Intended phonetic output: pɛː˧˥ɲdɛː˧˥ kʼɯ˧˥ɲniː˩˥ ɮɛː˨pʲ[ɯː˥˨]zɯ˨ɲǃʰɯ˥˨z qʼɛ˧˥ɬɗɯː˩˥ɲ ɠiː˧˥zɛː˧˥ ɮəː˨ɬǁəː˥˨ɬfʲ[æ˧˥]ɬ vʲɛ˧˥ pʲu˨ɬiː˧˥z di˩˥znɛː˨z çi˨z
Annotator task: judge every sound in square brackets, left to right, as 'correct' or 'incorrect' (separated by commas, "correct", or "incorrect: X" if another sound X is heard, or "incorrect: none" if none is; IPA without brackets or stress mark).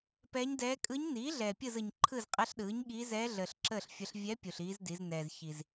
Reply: incorrect: ɯ˥˨, incorrect: ə˧˥